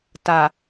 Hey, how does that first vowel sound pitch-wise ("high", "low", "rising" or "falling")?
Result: low